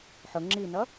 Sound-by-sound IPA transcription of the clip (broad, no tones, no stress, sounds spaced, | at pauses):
ħ ʊ ŋ͡ǁ i n ʌ